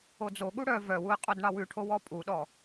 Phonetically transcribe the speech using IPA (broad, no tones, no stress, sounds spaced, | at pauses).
o d͡z o ɠ u ɽ œ v œ w u ɪ̯ qʼ o d ɳ ɑ w ʉ ʈʰ o w ɔ pʼ u ɗ ɔ